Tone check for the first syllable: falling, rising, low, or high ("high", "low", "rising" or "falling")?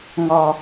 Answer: low